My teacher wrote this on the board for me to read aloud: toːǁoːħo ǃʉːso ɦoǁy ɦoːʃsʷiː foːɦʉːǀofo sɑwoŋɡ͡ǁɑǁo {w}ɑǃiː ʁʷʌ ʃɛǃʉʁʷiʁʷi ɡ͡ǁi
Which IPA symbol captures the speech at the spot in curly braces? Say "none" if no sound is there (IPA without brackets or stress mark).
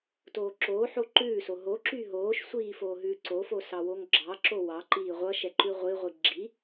w